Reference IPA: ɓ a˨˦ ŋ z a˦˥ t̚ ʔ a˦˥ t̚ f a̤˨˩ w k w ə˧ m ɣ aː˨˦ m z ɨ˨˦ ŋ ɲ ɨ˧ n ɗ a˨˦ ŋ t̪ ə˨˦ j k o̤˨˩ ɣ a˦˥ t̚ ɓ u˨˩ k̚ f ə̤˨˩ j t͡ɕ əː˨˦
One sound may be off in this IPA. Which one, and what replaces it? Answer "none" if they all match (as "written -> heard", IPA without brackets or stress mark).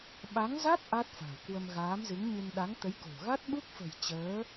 u˨˩ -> u˦˥